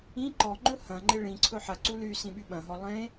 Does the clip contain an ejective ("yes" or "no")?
no